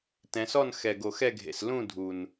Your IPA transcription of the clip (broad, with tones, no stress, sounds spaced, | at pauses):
t ɛ̃˩˧ s ɔ˥˨ n x ɛ˨˩ ɡ o˨˩ x ɛ˥˨ ɡʱ ḛ˨˩ s l ũ˥˨ dʱ u˨˩ n